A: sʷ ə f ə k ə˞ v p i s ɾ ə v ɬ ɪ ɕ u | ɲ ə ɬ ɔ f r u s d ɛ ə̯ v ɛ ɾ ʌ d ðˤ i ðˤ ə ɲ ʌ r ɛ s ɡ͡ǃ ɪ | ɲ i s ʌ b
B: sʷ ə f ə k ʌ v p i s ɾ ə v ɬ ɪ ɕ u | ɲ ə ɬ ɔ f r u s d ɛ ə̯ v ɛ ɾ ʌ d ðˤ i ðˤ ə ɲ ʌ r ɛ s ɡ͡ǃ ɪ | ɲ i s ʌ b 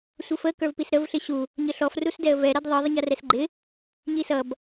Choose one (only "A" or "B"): A